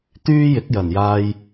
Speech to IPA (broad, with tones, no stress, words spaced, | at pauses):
t̪yː˥jɪ˨˥k̚jɐ˨˩n jaː˧j